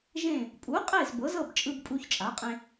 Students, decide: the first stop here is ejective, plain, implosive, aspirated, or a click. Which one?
ejective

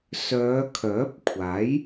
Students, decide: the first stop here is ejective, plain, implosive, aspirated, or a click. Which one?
aspirated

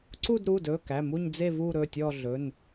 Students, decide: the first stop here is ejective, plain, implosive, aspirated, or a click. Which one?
click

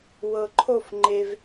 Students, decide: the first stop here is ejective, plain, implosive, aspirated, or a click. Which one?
click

